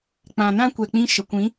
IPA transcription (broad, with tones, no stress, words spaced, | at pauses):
k͡pã˨nã˦kʷɛ˨k͡pĩ˧ ʃə˨kʷĩ˨˦